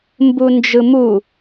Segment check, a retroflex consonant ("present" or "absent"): absent